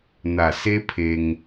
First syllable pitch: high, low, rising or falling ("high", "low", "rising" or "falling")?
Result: low